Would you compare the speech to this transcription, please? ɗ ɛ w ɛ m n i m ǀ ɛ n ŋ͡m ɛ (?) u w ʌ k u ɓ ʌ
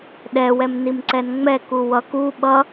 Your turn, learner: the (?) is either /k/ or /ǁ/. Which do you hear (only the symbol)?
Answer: k